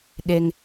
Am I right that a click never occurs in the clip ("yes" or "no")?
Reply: yes